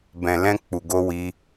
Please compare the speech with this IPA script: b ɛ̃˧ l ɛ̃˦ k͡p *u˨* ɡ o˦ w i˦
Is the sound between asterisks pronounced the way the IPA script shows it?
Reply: no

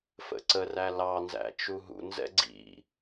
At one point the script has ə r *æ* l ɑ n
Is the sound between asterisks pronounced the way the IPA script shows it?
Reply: yes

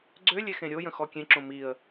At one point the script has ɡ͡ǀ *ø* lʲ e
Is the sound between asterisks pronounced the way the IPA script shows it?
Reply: yes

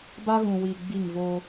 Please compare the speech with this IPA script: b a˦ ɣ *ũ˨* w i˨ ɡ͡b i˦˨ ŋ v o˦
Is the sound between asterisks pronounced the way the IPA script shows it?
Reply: yes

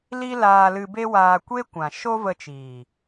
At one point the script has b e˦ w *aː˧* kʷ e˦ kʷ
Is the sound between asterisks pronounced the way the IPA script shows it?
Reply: yes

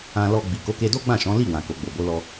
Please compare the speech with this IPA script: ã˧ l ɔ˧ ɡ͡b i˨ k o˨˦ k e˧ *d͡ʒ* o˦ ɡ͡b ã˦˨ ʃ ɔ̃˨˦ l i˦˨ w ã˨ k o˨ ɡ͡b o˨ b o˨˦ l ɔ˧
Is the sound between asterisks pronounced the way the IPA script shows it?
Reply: no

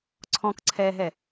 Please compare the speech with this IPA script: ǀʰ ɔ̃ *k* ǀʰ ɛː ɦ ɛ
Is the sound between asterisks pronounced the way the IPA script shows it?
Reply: yes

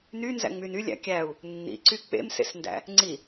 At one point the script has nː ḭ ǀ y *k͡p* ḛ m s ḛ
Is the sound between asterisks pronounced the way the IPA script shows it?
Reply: yes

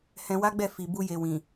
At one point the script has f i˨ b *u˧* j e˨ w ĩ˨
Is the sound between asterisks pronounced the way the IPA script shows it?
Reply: yes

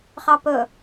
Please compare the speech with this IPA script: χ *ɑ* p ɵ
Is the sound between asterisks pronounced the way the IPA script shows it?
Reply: yes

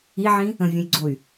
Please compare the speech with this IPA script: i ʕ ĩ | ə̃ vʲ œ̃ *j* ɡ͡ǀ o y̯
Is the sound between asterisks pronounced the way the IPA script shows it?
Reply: yes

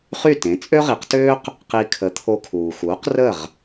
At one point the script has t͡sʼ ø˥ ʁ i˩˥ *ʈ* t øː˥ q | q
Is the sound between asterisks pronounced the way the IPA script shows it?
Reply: no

